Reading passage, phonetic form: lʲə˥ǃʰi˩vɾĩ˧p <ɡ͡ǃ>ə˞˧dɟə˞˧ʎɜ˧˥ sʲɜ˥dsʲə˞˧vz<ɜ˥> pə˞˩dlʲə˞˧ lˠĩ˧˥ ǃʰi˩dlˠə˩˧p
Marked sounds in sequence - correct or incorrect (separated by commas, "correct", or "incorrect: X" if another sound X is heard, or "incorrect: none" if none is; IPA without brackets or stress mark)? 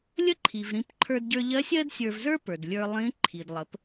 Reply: incorrect: ǃʰ, incorrect: ə˞˥